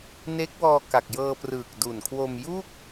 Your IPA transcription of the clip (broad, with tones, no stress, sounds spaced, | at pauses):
n e˦˥ k̚ w ɔː˧ k a˨˩ k̚ j ɤː˧ p r ɯː˨˩ k̚ d u˨˩ n kʰ w o˧ m j u˥˩ k̚